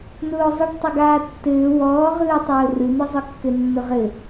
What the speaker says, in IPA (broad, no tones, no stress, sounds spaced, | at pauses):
n ʊː zˤ ɯ ɖ tˤ ʏ ɡ aː tː ɘː w ɔː ʁ ɯː tˤ ʊː r ɯ n̪ ɯ zˤ ɯ kː ɘ nː ʊ ʁ ɘ